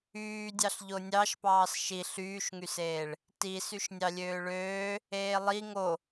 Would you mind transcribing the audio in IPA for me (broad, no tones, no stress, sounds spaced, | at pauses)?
yː dʲ ɑ ɬ ʎ o nʲ ɑ ʃ p ɑː s ʃ i ɬ yː ʃ ŋ y s eː ɭ | t i s y ʃ nʲ ɑ lʲ øː ɭ øː | eː lˠ i ŋ o